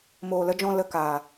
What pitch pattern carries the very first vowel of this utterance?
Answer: low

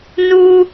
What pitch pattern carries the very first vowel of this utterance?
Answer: high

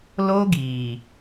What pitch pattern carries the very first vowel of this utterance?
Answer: high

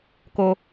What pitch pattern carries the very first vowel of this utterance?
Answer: low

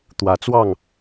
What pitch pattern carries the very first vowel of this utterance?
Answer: rising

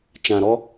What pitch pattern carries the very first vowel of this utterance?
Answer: low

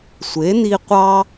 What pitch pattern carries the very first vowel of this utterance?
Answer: rising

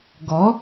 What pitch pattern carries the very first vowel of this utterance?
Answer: rising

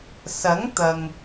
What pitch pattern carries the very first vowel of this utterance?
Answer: rising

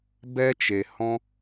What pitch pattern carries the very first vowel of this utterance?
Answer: high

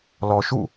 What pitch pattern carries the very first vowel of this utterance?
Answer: low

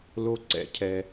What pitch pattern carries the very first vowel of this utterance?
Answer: high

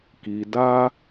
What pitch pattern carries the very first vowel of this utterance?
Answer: low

